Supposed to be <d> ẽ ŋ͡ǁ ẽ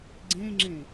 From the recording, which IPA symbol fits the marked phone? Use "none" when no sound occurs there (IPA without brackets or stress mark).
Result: ɡ͡ǀ